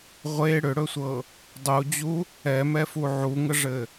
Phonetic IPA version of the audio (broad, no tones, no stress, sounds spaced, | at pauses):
ʁʷ e ɽ ʏ ɽ ɵ sʷ ɤ | dˤ u d͡ʑ u | ɛ m ɛ f u ʕ u ŋ ə ʐ ɘ